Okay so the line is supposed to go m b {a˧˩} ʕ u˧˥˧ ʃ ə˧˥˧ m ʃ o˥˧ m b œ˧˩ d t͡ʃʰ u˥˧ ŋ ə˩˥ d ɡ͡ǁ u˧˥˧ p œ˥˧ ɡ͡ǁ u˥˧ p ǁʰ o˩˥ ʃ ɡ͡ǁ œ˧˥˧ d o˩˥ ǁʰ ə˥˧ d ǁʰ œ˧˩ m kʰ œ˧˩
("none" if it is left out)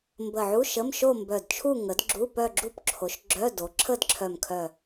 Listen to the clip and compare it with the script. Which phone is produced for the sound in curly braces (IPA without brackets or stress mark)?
ə˧˩